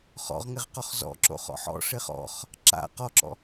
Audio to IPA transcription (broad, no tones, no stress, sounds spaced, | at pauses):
χ ɔ̰ ʁ ŋ ɪ ʁ q ɔ χ z ɔ̰ ǁ o̰ χ ɔ̰ ħ ɔ̰ ʂ ɪ χ ɔ̰ χ | ǁ a̰ q ɔ ǁ ɔ̰